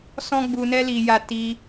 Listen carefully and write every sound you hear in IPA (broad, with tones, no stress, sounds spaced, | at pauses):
s ɔ̃˦ ɡ͡b u˧ n ɛ˦ l i˧ j a˧ t i˧